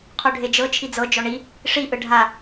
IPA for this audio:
qʰ u ɖʱ e d͡ʒ ɤ t͡ʃʰ i d͡z ɤ d͡ʒ ɔ ɳ i | ʂ i ʔ ɯ ɖʱ a

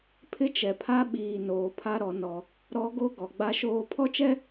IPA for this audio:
pʰ ɪ˦ t͡ʃ ɛ˨ pʰ a˦ ɓ iː˨ n oː˨ pʰ a˦ ɾ ɔ˨ n ɔ˨ | ɾ ɔ˦ ɡ o˦ ɡ ɔ˨ ɡ͡b a˦ ʃ oː˦ pʰ ɔ˦ t͡ʃ ɛ˦

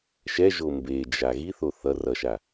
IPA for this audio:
ʃ ɛ ʒ o m b e d͡ʒ a ɣ i θ o θ ʌ r ʌ ʃ a

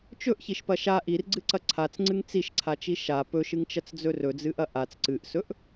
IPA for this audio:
t͡ʃ ɵ ʔ ç i ʃ p ɐ ʃ a ʔ i r ɡ͡ǀ ɨ ǀ ɐ ǀʰ a t͡s ŋ͡ǀ ɨ ŋ t͡s i ʃ ǀʰ a t͡ʃ i ʃ a p ɵ ʃ ɨ ŋ t͡ʃ ɐ t͡s d͡z ɵ r ɵ d͡z ɨ ʔ ɐ ʔ a t͡s ǀ ɨ ʔ s ɵ ʔ

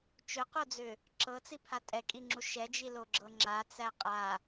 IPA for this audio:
t͡ʃ ɵ q o d͡z ʏ | ǁ ɤ t͡s i pʰ a tʼ ɛ kʼ i ŋ͡ǁ u ʃ ɛ d͡ʒ i l o ɡ͡ǁ ɤ ŋ͡ǁ a t͡s æ qʼ a

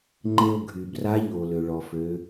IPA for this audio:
ŋ͡ǃ e˧ o̯ ɡʱ y˩ b r a˧˥ ʎ o˩ l ø˩ ɭ ɔ˩ f ø˩˧

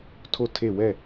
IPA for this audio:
tʰ o˦˨ tʰ e˦˨ w ɛ˦˨

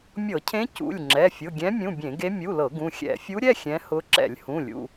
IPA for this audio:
mʲ ɤ˧˩˧ cʰ ẽ˧˥ c ṵ˩˧˩ lʲ ŋ͡ǁ ɛ˩˧˩ fʲ ʊ˩˧˩ ɡʲ ɛ̃˧˥ mʲ ũ˩˧˩ bʲ ẽ˧˩˧ ɡ e˧˥ mʲ u˩˧˩ l ɤ˧˩˧ ɡ ũ˩˧˩ xʲ ɛ̰˧˩˧ fʲ u˧˥ ɾʲ ɛ˩˧˩ xʲ ɛ̃˧˥ h ʊ˧˥ ǁ ɛ̰˧˩˧ lʲ h ũ˩˧˩ lʲ ṵ˩˧˩

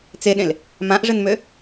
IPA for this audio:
t͡s e ɗ ẽ l | m ã ʔ ʐ ɘ n m ø

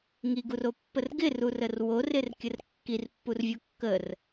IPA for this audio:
ŋ i ɡ u r o pː ə r ɡ ɪ r u r ə r w o r ɪ r kʲ ə r kː i r pː u r vʲ o kː ə r

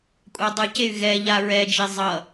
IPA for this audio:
kʷʼ a dˤ ɯ c e y̯ ɣ ɛ ʎ a ɹ ɛ d͡ʒ e zˤ ʌ

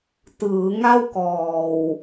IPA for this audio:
t ɯː˩˦ ŋ a˥˩ w k ɔː˨˩ w

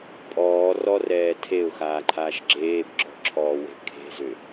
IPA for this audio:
pʼ ɔː r ɔ r ɛː tʰ e ʊ̯ x aː ǃʰ aː ʃ ɡ͡ǁ eː b ǁ ɔ̤ ǁʰ ɔː w e̤ kʰ e̤ z ʏ

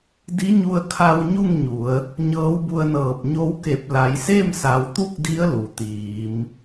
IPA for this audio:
d i˧˥ ɲ u˧ ə̯ kʰ a˧ w ɲ u˥˨ ŋ ɲ u˩˧ ə̯ | ɲ ɤː˧˥ w b u˧ ə̯ n ɤː˧˩ p̚ ɲ o˧˥ w k e˧˩ p̚ l a˩˧ j s e˥˨ m s a˩˧ w t̪ u˥˨ k̚ d i˧˥ ə̯ l u˩ t̪ iː˩˧ m

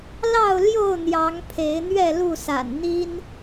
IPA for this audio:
l ɑ˥˨ ʊ̯ l j o˥˨ ʊ̯ n̪ j ɑ˨˦ ŋ pʰ e˨˦ ɪ̯ n̪ ɥ ɛ˥˨ l u˥˨ s a̰˨˩ n n̪ i˦ n

